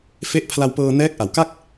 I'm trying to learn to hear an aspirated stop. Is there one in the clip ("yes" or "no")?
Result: yes